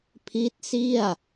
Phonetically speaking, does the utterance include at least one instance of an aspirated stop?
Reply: yes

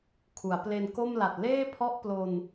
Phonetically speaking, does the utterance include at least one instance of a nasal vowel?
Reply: no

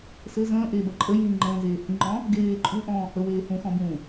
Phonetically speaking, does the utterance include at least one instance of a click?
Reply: yes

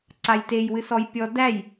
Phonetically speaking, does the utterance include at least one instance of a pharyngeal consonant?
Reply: no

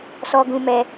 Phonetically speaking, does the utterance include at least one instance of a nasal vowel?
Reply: yes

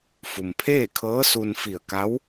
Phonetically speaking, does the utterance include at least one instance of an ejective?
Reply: no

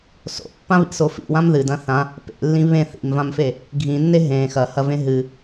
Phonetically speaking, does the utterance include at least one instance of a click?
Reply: no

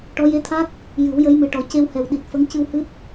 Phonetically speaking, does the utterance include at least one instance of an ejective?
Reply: no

